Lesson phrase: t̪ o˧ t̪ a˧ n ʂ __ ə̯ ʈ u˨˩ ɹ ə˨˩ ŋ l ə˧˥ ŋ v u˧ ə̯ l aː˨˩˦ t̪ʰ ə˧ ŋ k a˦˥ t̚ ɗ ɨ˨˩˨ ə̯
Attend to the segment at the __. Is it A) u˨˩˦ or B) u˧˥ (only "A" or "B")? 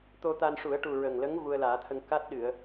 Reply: A